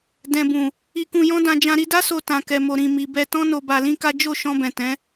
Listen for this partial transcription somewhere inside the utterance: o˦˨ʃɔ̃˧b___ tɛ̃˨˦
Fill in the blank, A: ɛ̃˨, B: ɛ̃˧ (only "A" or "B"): A